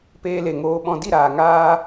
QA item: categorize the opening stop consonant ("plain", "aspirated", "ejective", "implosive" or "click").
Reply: plain